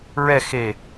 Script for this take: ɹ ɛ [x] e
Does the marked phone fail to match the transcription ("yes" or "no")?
no